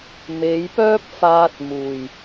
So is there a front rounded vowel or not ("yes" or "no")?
yes